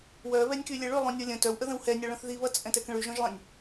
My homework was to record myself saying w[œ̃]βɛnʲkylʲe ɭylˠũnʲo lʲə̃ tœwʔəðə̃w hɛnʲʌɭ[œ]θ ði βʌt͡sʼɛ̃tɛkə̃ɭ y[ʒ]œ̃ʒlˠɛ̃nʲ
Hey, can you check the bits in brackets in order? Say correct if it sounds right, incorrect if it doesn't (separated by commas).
incorrect, incorrect, correct